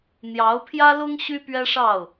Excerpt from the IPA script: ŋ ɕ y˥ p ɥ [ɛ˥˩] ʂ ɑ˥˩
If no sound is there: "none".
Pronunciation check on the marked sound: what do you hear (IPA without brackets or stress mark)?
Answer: ɛ˥